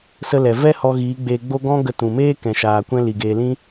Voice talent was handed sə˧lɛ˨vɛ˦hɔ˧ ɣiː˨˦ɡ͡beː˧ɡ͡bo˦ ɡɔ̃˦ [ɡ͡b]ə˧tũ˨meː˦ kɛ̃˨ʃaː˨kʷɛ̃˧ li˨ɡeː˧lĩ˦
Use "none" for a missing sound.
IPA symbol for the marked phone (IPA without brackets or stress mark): ɡ